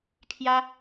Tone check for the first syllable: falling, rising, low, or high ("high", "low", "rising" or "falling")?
high